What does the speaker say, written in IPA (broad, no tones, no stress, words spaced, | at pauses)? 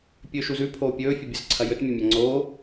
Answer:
pʲɵːʃuzʉ pʰoːpʲɵː fʲobʲɐzǀʰɐjɵt mʲɐmʲaŋ͡ǀoː